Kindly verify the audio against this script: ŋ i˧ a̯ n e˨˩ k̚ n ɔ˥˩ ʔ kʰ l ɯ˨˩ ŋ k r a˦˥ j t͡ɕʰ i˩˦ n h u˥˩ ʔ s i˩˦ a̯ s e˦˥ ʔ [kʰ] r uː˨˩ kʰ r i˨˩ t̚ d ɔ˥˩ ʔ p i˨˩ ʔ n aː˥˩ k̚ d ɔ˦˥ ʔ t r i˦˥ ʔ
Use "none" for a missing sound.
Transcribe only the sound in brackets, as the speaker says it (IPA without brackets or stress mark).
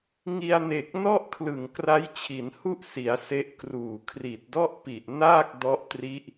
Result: k